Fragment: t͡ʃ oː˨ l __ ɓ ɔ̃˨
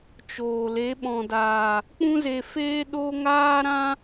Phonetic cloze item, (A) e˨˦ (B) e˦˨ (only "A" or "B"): A